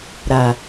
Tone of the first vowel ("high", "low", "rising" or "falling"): low